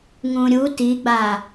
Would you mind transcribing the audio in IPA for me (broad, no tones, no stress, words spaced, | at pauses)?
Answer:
ŋũɾʲu tiɡ͡ba